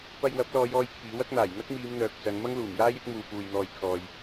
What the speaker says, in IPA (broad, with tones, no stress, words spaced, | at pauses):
pɐ˧jwɐ˨˥p̚lɔː˨˧jɔː˧j kʰiː˨˥wɐ˥k̚n̪aː˨˩j n̪ɐ˥k̚miː˨˧mn̪œː˨k̚ t͡sɐ˨˧n mɐ˥ŋluː˨˩mjaː˥jɪ˥k̚ muː˧puː˧jn̪ɔː˧j kʰɔː˨j